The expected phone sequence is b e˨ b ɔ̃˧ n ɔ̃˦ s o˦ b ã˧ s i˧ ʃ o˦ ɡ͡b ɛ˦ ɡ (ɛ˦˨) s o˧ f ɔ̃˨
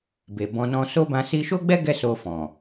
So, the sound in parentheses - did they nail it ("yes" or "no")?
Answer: no